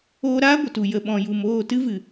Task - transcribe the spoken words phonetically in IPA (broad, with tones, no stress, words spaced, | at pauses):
oː˧ɾaː˦ɡʷə˨tu˨ jə˨ɓɔ̃˨ju˨moː˦˨ tɨ˦vɨ˨